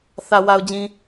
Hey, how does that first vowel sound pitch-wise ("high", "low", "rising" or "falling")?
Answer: low